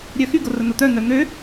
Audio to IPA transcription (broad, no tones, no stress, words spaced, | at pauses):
ɾʲœxy ɡorən̪ot̪œ n̪œn̪ø